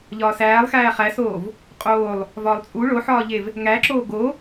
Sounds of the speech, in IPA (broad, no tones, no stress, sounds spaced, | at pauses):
ʎ ɒː s æː lˠ x æː χ æ s oː v | qʼ oː lˠ | v ɒː lˠ t͡sʼ u ɭ o ħ ɒː ʎ e v | ŋ æ ǁ oː ɡ o